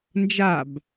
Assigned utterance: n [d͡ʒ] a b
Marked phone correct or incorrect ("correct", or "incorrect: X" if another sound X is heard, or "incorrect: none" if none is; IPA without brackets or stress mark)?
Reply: correct